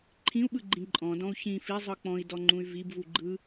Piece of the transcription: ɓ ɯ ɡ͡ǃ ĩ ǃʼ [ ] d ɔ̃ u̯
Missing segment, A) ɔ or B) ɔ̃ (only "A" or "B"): B